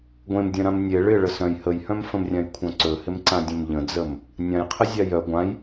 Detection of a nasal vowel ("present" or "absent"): present